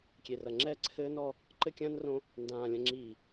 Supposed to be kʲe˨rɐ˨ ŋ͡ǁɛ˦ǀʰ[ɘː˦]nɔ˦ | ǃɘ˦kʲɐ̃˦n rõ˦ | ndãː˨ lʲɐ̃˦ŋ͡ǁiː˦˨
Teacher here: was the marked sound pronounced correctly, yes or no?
yes